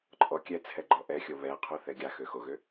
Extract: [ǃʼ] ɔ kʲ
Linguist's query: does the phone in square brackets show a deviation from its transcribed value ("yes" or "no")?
no